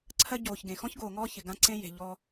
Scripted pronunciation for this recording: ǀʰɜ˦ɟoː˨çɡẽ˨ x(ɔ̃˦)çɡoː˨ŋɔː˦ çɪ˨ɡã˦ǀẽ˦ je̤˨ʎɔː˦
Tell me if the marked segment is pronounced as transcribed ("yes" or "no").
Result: yes